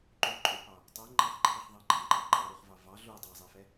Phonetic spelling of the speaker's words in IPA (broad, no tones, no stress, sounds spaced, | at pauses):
ǃ u ǃʼ u p ɑ | tˤ ɛ ŋ͡ǃ ɑ χ ǃʰ i χ ðˤ ɑ ɡ͡ǃ ɑ ŋ͡ǃ ɑ ǃʼ ɑ ɾ u χ v ɑ v ɑ ɮ u dˤ ɑ zˤ i f ɛ